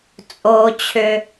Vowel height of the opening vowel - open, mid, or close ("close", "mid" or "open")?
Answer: mid